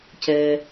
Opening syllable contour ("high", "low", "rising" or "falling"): low